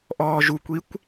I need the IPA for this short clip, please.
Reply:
ʔ ɔː ʒ u kʷ i kʷ

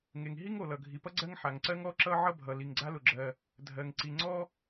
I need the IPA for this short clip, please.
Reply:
ŋ e˩ ŋ ɦ i˥ ŋ o˩ l ʌ˩ ɡʱ i˩ p ʌ˥ ɡ͡ǀ ɜ˥ ŋ ħ a˩ ŋ ǀ ɜ˥ ŋ ɔ˥ ǁ ʌ˥ ʕ ʌ˥ bʱ ʌ˩ l i˩ ŋ ɡ͡ǀ a˥ l ʊ˩ ɡ͡ǁ ɜ˩ | dʱ ɜ˩ ŋ ǀ i˩ ŋ͡ǀ ɔ˥

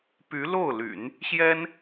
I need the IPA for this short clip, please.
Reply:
p y˧˥ l o˥˩ ʊ̯ l y̰˨˩˦ n | ɕ j ɛ˥ n

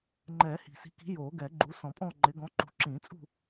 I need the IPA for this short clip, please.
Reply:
ŋ͡ǃ ɛː˨˩˦ h i̤˨˩ s i̤˨˦ k i̤˨˦ j oː˨˩˦ ɡ ɛ˨˩˦ ɡ͡ǃ u˨˦ s ɔ̃˨˩˦ pʼ ɔ̃ː˦˨ ŋ͡ǃ ɪ˨˦ ɡ ɔ̃˨˦ ǃ ṳ˨˩˦ ǁ ĩː˨˩˦ t͡sʼ ṳ˦˨

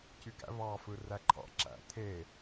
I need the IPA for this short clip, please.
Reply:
c y ɡ æ̰ v ɑ f ɯ r æ ǃʰ ɑ̰ ǁ æ̰ t̪ʰ e

